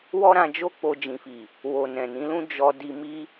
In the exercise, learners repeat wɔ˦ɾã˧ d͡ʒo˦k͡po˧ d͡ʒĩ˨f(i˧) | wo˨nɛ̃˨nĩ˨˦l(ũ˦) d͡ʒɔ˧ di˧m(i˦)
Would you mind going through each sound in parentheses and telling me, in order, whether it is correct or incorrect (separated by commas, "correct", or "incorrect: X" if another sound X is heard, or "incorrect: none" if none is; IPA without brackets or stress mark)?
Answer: incorrect: i˨, correct, correct